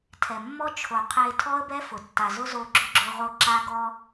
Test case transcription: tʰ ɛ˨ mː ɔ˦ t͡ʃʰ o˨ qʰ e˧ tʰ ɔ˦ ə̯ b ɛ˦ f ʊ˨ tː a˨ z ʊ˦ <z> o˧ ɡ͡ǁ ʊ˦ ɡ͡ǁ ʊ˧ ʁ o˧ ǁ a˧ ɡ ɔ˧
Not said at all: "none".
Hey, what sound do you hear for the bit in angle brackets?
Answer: z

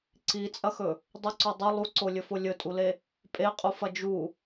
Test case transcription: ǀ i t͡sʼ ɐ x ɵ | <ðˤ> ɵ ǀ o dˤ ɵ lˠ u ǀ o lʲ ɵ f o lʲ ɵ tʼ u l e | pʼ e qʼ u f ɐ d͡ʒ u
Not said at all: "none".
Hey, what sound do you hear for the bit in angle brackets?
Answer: dˤ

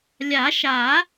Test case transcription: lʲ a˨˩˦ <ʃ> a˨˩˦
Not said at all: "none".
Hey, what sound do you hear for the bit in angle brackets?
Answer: ʃ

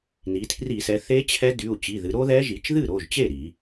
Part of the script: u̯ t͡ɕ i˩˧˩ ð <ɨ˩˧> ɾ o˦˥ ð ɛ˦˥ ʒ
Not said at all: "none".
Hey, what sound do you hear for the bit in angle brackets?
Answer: ɨ˩˧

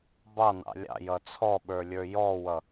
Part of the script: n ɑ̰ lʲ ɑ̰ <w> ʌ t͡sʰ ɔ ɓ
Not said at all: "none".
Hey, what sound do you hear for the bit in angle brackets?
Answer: j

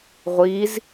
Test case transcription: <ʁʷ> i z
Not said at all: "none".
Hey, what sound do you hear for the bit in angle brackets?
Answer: ʁʷ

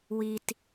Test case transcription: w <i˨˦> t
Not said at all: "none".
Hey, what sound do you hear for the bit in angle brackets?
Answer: i˨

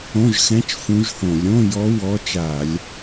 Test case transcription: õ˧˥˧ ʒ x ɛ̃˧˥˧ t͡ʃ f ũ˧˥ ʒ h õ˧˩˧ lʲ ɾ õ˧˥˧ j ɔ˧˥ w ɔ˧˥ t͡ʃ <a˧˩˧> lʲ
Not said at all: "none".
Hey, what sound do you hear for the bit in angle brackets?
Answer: a˧˩˧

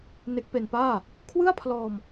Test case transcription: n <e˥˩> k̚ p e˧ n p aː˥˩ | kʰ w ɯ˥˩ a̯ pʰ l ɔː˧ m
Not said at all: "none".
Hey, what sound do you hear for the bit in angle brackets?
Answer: e˦˥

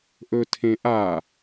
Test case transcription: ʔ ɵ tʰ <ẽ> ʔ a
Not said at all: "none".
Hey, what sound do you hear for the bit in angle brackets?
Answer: ẽ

